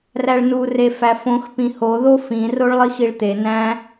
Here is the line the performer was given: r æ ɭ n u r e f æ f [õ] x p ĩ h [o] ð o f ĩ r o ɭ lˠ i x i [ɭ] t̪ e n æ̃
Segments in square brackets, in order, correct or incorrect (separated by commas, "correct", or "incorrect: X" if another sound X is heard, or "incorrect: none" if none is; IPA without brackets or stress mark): correct, correct, correct